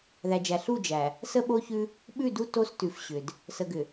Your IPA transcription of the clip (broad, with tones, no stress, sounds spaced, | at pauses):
ð æ˨ d͡ʒ æ˨ ɬ u˦˨ d͡ʒ æ˨ | s ə˦ ɓ o˦ ç ʉ˦ | ɓ ʉ˦˨ d u˦ t o˦ s t ʉ˨ f ɕ ʏ˨ d | s ə˨ ɡ ʏ˨